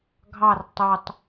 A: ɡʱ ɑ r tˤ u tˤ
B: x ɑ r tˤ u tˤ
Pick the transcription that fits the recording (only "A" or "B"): A